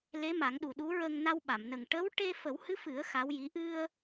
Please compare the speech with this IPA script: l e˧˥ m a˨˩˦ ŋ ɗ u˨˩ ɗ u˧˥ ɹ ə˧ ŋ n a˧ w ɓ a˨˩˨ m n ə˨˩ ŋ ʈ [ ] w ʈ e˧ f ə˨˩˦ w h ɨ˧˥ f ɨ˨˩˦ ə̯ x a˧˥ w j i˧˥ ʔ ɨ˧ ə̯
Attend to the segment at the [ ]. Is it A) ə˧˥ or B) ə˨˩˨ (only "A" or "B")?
A